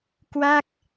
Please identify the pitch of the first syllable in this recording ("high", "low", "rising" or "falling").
falling